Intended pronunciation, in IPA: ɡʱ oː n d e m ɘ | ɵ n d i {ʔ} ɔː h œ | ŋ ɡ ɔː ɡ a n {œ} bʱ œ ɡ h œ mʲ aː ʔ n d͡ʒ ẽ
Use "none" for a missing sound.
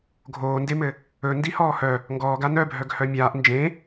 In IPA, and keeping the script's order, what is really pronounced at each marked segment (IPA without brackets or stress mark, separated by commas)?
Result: h, œ